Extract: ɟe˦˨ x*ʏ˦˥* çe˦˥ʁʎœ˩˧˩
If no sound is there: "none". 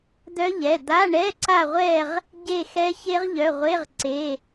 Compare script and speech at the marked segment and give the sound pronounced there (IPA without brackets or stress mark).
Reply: ɛ˦˥